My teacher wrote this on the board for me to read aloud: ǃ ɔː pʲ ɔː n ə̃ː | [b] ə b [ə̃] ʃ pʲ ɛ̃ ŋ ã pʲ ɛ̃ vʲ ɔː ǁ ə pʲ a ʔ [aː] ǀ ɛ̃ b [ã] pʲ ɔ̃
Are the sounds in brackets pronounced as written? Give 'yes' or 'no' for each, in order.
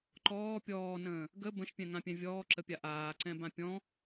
no, yes, yes, yes

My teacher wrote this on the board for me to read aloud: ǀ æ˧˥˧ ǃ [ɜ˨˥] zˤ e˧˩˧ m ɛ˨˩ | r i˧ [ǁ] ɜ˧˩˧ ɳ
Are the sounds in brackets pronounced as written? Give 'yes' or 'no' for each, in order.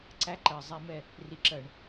no, yes

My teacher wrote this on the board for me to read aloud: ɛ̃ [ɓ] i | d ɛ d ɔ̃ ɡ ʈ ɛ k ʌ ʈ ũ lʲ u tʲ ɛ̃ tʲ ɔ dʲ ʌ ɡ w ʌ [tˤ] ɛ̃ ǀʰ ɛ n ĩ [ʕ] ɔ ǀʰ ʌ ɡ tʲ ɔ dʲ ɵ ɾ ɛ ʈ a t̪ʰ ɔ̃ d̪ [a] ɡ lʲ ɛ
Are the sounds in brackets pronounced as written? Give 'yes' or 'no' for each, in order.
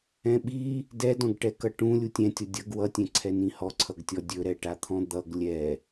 yes, no, no, no

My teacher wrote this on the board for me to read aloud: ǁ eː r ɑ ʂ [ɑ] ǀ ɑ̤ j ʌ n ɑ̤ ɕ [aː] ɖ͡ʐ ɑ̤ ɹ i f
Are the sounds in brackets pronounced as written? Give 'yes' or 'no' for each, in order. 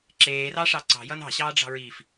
yes, no

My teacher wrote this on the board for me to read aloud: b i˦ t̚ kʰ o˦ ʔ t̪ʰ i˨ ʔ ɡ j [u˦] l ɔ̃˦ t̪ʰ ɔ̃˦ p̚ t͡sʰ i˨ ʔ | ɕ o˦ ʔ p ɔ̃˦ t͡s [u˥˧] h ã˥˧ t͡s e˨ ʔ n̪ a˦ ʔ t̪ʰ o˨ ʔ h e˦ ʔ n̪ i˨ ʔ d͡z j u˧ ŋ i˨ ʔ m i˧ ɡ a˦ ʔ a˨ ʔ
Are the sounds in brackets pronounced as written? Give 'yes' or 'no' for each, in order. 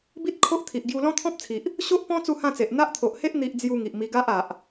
no, yes

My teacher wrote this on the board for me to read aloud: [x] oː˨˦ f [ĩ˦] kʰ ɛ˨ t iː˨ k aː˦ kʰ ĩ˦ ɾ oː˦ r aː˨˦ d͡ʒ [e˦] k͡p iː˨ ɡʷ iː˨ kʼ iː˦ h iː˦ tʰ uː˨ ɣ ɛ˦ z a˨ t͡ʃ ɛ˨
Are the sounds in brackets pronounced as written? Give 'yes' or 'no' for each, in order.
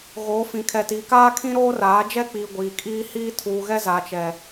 no, no, no

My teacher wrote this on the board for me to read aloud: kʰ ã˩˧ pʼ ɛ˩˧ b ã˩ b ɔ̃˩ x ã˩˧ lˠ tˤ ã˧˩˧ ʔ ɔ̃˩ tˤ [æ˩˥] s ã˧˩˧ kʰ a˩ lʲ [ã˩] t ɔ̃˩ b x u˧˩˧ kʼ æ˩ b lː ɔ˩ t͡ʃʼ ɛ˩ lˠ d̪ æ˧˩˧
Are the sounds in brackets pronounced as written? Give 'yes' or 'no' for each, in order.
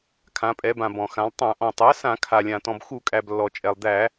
yes, yes

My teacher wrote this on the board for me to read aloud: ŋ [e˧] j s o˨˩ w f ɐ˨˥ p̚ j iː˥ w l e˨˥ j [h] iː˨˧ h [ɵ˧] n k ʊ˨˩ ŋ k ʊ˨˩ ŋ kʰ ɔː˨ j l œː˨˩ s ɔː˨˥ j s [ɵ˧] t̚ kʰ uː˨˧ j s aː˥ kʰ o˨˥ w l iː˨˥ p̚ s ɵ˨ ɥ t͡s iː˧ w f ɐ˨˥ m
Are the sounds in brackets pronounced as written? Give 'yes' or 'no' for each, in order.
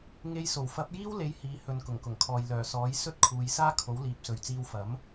yes, yes, no, no

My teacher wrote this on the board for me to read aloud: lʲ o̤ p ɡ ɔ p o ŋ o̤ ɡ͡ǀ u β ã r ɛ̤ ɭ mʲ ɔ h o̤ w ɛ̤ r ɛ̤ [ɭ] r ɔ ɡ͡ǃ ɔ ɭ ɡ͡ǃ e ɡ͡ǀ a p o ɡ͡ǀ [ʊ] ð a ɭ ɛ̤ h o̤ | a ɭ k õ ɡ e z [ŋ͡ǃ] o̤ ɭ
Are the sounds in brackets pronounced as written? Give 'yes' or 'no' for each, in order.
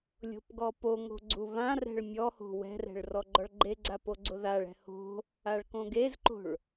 yes, yes, no

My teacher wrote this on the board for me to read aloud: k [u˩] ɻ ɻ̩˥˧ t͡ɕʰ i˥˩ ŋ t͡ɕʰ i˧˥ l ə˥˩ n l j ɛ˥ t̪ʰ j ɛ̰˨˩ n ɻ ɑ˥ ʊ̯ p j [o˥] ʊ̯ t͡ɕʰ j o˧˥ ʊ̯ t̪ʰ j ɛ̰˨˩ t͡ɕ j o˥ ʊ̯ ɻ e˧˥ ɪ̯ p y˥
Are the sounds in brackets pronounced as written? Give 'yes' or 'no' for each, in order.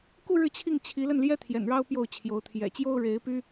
no, no

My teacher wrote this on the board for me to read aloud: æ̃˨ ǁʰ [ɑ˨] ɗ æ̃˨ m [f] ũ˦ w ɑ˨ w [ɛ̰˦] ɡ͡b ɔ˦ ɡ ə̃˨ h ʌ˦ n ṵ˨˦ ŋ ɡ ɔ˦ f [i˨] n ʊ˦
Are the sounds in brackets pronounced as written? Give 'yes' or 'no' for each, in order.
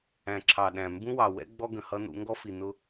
yes, no, yes, yes

